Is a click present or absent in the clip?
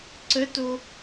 present